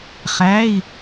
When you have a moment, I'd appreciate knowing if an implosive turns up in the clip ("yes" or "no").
no